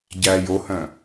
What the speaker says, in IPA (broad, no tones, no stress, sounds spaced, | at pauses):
ɟ æ j o h œ̃